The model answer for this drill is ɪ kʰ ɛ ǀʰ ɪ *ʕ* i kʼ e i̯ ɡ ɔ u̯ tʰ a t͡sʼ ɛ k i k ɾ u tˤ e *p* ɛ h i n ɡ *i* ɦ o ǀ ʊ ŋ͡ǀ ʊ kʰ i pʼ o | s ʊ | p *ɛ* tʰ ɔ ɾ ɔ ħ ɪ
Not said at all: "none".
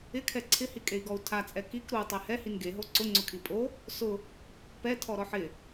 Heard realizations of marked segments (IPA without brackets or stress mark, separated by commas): h, h, e, ɛ